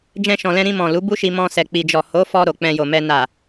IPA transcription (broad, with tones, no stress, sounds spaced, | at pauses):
d͡ʒ ɛ̃˧ ʃ ɔ̃˨ l ɛ̃˧ ɾ ĩ˧ m ɔ̃˨ l u˨˦ b u˦ ʃ i˧ m ɔ̃˧ s ɛ˨ k͡p i˨ d͡ʒ ɔ˨ h o˨˦ f ɔ˧ ɾ o˨ k͡p ɛ̃˧ j o˨ m ɛ˧ n a˨